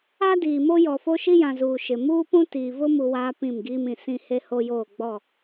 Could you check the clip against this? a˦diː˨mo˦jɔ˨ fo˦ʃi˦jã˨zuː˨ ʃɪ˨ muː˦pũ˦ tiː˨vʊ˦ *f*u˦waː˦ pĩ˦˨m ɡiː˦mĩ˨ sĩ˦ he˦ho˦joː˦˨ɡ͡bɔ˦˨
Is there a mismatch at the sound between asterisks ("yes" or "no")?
yes